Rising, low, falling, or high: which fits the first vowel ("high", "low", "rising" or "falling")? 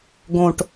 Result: low